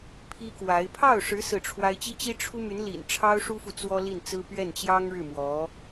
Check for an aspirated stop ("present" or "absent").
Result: present